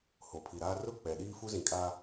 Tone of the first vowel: low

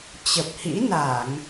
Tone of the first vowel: low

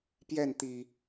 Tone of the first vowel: falling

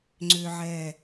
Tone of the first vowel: high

